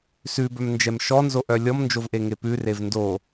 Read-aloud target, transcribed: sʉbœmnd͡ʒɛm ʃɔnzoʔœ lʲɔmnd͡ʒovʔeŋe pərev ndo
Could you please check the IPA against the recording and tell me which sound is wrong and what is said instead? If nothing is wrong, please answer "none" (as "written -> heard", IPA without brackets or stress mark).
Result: ə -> ʉ